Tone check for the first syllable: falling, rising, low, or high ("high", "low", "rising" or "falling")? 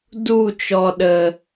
falling